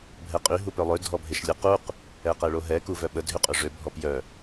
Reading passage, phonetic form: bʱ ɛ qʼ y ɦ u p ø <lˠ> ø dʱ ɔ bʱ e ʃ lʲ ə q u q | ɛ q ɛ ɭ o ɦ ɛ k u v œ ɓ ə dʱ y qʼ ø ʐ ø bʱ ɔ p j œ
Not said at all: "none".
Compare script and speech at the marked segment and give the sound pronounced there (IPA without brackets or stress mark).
lˠ